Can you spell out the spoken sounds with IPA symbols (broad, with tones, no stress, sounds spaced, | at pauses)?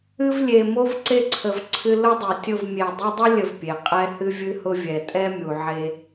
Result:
ɨ˧ v lʲ e˨ m o˧ v ǀ e˧ ǀʰ ə˨ v ǀʰ ɨ˧ l ʊ˦ dˤ e˨ tʲ ʊ˦˨ v mʲ e˨ dˤ u˧ dˤ ə˦ lʲ ə˧ v pʲ e˨ qʼ ɛ˦ h ɨ˧ vʲ ɨ˧ h ʊ˧ vʲ ɛ˨ tʼ ɛ˦ mʲ u˨ ʕ e˧